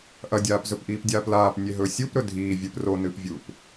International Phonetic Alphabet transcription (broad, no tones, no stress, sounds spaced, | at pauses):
ʔ ɐ dʲ aː p z ɵ p ʔ iː p dʲ aː p l aː p nʲ e ɦ ɵː sʲ u p ɾ ɵ dʱ iː vʲ ɨ p r o n ɨː p vʲ uː p